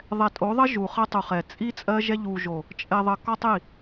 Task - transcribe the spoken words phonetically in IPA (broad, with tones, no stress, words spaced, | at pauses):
ðˤɛ˨tʼo˨˦ðˤə˦ ʒu˨ χɜ˦tˤu˨χɛ˨ t͡sʼi˦ t͡sʼɜ˦ʒɛ˦ ʎu˨ʒo˨ | t͡ʃʼɛ˨ðˤə˨ kɔ˦tˤi˦˨